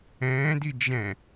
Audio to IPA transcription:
ɛ̃ːdi d͡ʒɛ̃

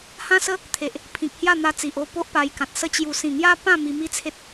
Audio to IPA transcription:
hã˦sə˦ | t̪ʰe˨ʔ | pʰĩ˨k̚hja˥˧n̪a˧ t͡si˨ʔo˥˧po˦ʔ pa˧jkã˨t̚ sə˧t͡ɕju˨˩sĩ˨˩ ŋja˦pã˥˧ mi˧mi˦t͡sʰe˦t̚

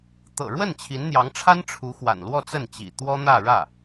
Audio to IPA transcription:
t̪ɤ̰˨˩ɻwə˥˩n t͡ɕʰi˧˥nn̪jɑ˧˥ŋʈ͡ʂʰa˥n ʈ͡ʂʰu˧˥xwa̰˨˩nlwɔ˥˧ t͡sə˥˩nt͡ɕḭ˨˩t̪wɔ˥ n̪ä˥˧ɻä˥˩

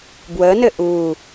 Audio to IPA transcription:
bwənɘ ʔu

